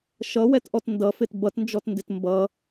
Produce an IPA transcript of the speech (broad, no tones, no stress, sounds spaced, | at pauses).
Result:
ʃ ʌ w ɛ t ʔ ɔ t n d ʌ f ɪ t b ʌ t n d͡ʒ ɔ t n d ɪ t m b ʌ